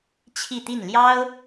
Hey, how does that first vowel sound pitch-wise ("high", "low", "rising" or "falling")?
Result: falling